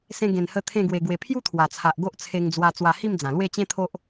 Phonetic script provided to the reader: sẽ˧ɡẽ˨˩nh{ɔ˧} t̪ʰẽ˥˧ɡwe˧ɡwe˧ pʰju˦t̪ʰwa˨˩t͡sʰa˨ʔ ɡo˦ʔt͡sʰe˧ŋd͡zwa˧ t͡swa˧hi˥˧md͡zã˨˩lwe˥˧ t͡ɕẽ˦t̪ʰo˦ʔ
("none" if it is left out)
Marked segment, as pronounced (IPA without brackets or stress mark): ə˧